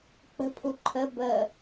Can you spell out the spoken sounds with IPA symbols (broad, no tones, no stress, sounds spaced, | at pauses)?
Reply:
k͡p ə̤ pʰ u ǃʰ ə b ə